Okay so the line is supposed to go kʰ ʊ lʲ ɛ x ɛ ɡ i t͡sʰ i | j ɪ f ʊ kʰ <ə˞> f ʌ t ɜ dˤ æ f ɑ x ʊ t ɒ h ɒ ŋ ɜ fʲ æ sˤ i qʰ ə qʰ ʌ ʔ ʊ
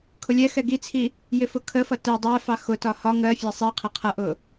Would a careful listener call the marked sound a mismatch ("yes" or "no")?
yes